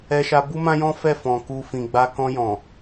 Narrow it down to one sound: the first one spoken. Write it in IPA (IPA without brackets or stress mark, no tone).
ɛ